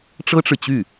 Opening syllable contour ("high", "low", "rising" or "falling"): high